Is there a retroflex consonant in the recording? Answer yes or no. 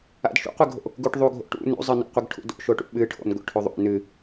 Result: yes